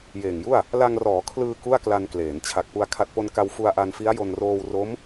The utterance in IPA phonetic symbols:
jeː˨˩ŋju˥˩a̯ | la˧ŋrɔː˩˦ kʰlɯː˧ ku˥˩a̯kla˧nkleː˩˦n t͡ɕʰa˨˩k̚pu˧a̯ kʰa˨˩t̚po˧nka˧w fu˧a̯ʔa˧nfi˦˥a̯jo˧n roː˧w ro˦˥m

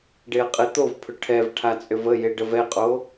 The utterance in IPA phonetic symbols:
ɖeɐ̯qʼet̪ovpʰʏ ʈʰɛvʈʰat͡sʼʏv ə jeɖəvɛqʼo

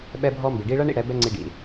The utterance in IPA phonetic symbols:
ɓɛ˧bʱɔ˧ mbi˨ ɖi˧ɭɐ˦ɳḭ˧ ɽɛ˨˦ bɛ˦ŋ͡ǀi˧ɖḭ˨

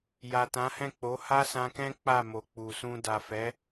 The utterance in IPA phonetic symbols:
ja˨tã˨˦hɛ̃˦˨ k͡po˨˦ ha˦sã˧kɛ̃˦ k͡pa˦˨mo˨k͡pu˨sũ˧ da˨fɛ˨˦

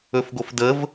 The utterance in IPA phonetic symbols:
ɵfɡofdəv

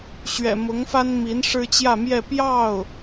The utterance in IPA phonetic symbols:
ɕɥɛ̰˨˩mʊ˧˥ŋfa˥n mi˧˥n ʂɻ̩˥t͡ɕjä˥˧mjɛ˥˧ pjɑ˥˩ʊ̯

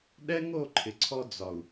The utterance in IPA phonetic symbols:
ɗɛ˦ŋo˦˨ǃʰɪ˨ ǀʰɔ˧d͡zɒ˨u̯

